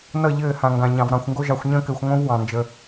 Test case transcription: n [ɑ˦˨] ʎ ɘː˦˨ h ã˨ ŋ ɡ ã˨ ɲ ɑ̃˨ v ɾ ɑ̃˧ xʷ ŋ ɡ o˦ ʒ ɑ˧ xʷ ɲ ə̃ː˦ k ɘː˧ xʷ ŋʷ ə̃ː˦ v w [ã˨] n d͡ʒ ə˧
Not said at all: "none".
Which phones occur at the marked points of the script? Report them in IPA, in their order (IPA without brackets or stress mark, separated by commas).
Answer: ʌ˦˨, ɑ̃˨